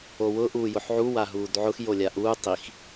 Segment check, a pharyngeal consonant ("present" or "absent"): present